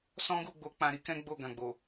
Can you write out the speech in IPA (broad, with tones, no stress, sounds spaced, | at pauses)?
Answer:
s ɔ̃˦ ɡ u˦˨ ɡ͡b o˧ k͡p ã˧ ɾ i˦ k ɛ̃˦ ɡ͡b o˦˨ ɡ ã˨ ɡ͡b o˨